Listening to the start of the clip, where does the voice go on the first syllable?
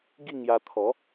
falling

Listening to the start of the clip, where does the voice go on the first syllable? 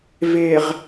low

